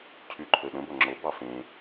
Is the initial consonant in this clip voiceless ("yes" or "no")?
yes